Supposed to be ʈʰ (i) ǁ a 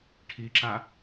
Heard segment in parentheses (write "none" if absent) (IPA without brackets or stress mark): i